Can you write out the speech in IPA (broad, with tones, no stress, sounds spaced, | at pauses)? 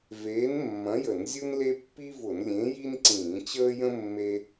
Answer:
v eː˨˥ n mː ɐ̃˨˥ j ə˧˩˧ n zʲ u˥ n l e˥ pː i˥ v ʊ˧˩˧ n lʲ ẽ˨˥ j i˥ n ǀ ĩː˧˩˧ t͡ɕ əː˥ j ə̃˥ mː e˥